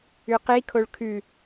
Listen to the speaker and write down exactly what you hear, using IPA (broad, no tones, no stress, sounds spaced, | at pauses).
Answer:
ʉ q i kʰ o ɭ kʰ ʉ